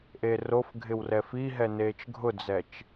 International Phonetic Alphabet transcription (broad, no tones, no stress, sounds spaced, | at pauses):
ʔ e r o f ɡʱ ɪ w r ɛ f i ɦ ɛ n eː t͡ʃ ɡʱ ʊ d͡z ɛ t͡ʃ